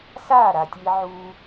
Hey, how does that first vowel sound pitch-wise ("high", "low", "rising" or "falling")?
falling